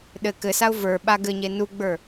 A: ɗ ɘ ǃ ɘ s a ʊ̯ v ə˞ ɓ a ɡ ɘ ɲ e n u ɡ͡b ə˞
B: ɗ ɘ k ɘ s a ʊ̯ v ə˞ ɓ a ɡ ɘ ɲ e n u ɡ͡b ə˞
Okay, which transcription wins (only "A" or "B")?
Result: B